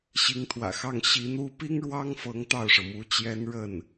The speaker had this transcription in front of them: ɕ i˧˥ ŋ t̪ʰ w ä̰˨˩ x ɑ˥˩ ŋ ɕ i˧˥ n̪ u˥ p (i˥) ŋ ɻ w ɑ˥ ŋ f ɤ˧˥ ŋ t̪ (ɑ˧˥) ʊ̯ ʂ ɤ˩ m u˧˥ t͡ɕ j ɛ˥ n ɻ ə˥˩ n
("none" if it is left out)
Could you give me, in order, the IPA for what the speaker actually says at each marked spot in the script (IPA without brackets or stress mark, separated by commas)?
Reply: i˥, ɑ˥˩